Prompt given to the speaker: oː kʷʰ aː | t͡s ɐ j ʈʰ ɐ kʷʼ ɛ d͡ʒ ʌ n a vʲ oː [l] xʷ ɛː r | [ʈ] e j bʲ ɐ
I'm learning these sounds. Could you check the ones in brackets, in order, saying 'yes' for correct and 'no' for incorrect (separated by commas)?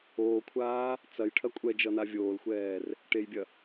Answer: yes, yes